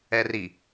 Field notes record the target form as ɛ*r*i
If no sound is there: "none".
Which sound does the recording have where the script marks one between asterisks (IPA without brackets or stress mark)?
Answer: r